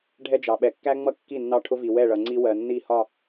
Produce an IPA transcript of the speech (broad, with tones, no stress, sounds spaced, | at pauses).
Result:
ɖʱ ɛ˦ d͡ʒ ɑ˨ ɓ ɛ˨ kː æ˦ ŋ͡m ʌ˦ kː i˦˨ nː ɑ˦ ʈʰ ʊ˦ v i˨ w ɛ˦˨ ɭ ʌ˨ ŋ͡ǀ i˦ w ɜ˨ nː i˦˨ h ɒ˦˨